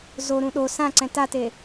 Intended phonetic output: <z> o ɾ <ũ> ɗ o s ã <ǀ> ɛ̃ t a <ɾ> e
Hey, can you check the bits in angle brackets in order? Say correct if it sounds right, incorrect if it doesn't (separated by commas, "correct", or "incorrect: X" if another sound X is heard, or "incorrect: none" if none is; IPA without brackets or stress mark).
correct, correct, correct, incorrect: t